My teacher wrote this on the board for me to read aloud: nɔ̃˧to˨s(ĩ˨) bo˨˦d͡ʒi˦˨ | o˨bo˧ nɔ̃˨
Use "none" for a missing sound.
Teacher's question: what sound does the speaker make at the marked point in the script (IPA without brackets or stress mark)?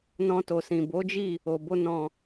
ĩ˨